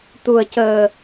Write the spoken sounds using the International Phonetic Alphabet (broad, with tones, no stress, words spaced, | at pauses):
t̪u˨˩ə̯cəː˨˩